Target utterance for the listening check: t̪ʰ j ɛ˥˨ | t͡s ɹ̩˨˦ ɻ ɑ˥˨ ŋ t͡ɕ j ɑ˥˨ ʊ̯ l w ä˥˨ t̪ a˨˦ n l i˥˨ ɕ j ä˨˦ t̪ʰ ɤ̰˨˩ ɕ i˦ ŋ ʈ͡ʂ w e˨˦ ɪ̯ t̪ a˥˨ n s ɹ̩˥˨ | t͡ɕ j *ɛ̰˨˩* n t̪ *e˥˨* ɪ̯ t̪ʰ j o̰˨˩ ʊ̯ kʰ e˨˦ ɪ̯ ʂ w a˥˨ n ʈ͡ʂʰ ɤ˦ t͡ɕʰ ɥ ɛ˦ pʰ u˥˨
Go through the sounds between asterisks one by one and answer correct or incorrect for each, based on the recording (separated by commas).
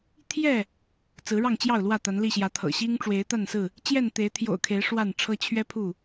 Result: incorrect, incorrect